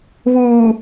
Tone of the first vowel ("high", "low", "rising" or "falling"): low